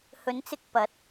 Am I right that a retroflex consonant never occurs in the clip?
yes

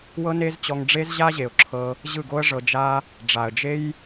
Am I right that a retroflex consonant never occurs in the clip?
no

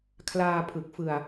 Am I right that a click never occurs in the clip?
yes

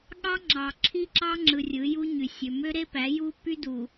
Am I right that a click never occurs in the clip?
no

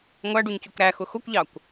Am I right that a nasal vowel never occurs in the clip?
yes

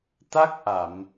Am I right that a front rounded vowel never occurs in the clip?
yes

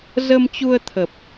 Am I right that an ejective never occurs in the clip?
yes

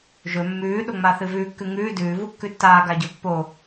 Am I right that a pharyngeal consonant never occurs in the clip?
yes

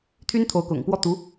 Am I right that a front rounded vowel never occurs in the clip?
no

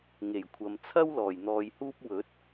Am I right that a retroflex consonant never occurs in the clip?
yes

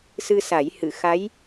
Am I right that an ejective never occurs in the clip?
yes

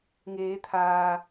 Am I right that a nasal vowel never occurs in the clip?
yes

